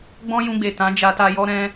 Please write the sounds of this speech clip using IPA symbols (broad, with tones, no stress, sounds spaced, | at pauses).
ɡ͡b ɔ̃˦ j ũ˧ ɡ͡b e˨ t ã˨˦ d͡ʒ a˧ t a˧ j ɔ˦ ɾ ɛ̃˧